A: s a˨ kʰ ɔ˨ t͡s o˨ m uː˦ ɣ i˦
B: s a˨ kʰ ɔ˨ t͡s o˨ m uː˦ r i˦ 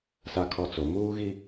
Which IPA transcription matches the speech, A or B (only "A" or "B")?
A